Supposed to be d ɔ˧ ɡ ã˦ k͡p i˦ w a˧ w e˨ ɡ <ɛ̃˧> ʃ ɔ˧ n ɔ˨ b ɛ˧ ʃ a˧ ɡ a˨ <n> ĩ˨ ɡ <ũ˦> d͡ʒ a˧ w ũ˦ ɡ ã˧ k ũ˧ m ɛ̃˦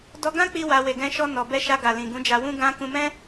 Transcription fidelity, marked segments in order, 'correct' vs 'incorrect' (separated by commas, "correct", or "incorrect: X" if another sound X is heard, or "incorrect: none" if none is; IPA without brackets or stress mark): correct, incorrect: l, incorrect: ũ˨˦